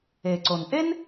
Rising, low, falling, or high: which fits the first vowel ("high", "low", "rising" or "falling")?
low